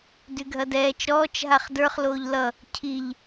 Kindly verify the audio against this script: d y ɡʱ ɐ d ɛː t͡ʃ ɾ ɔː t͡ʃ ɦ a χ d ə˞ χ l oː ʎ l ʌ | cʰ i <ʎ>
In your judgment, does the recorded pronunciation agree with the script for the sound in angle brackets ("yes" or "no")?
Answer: yes